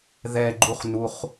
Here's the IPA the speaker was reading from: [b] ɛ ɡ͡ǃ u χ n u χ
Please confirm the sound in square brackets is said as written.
no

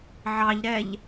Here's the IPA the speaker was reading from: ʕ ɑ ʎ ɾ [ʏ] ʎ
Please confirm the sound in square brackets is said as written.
no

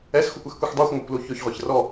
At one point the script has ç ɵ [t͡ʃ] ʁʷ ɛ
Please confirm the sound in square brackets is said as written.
no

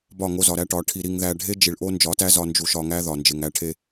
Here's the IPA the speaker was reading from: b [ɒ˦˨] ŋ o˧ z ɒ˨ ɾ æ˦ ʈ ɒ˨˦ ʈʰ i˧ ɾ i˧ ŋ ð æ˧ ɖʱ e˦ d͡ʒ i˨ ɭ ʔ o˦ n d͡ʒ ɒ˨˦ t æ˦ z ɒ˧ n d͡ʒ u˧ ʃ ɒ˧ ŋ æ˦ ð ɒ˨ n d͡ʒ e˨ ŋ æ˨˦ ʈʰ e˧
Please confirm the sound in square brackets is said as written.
yes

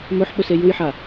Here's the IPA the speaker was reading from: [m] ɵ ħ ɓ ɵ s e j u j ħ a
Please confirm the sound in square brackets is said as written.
yes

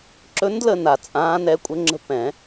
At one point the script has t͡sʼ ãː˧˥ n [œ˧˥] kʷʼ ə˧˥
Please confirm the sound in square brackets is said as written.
no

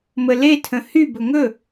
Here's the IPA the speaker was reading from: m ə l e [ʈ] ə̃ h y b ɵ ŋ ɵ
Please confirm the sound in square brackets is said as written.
no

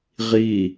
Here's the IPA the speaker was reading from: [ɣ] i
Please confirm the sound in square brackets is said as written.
no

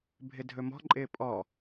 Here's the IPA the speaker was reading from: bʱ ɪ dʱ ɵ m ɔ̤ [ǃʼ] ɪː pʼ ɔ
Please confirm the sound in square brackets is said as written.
yes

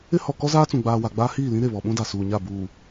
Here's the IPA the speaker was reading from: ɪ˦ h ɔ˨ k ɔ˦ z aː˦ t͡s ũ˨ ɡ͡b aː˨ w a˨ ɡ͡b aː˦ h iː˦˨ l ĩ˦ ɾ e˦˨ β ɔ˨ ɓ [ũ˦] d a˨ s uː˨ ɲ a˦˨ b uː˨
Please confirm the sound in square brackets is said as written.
yes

